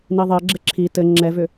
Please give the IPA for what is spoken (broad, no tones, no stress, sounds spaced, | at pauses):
n i ðˤ i ə̯ ɡ͡ǁ ɘ ǁʰ i t ɘ ŋ͡ǁ ɛ v ʏ